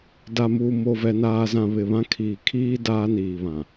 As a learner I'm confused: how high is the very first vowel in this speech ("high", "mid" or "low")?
low